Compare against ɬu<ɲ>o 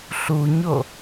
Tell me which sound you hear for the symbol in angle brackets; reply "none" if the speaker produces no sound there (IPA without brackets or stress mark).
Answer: ɲ